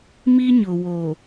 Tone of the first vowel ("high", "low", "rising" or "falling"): high